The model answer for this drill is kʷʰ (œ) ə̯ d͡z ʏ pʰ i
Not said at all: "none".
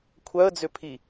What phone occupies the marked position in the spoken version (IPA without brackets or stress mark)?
œ